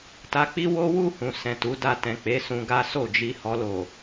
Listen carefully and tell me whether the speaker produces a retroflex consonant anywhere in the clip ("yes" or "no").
no